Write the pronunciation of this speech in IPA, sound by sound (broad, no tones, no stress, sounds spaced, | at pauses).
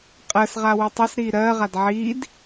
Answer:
qʼ ɜ s ʁ a w i tˤ ʌ s ɾ iː ɾ ɜː ʁ a d ʕ iː d